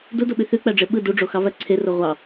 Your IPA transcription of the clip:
d u d o ɓ y θ y k͡p æ ɖ͡ʐ e ɓ ɯ d u ɖ͡ʐ o x ɑ v æ ǀʰ e r o ʁʷ ɑ

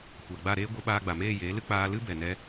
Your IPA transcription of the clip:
kʷ a˨ ɡ͡b a˦˨ ɾ eː˦ ɡʷ ə˨˦ ɓ aː˧ ɡ͡b a˨ m eː˦˨ j eː˨˦ l ɨ˦ k͡p aː˧ l ɨ˦ b ɛ˨ n ɛ˧

